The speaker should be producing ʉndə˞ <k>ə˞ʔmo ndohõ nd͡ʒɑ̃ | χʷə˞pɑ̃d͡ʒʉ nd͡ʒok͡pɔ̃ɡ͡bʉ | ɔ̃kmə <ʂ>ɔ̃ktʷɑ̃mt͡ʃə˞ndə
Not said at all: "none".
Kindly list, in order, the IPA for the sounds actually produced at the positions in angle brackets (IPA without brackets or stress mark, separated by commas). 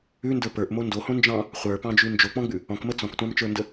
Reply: p, t͡s